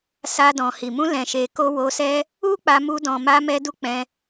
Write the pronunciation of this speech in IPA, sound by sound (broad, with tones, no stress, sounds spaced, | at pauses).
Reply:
s a˧ d ɔ̃˨ h i˨ m ũ˧ l ɛ̃˨ ʃ e˨ k o˧ w o˧ s ɛ˦ | u˦ k͡p a˧ m u˧ d ɔ̃˨ m a˧ m ɛ˧ d u˧ k͡p ɛ̃˧